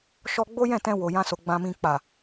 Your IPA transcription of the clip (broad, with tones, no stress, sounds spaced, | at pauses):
ʃ ɔ˧ ɡ͡b o˦ j ɛ̃˦˨ t ɛ̃˧ w o˨ j ã˧ s o˨ ɡ͡b ã˨ m ĩ˨ k͡p a˨